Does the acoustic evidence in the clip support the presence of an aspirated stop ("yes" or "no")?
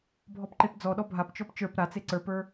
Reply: no